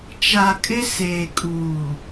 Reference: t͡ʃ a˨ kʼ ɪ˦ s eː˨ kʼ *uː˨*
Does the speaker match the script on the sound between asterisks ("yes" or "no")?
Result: yes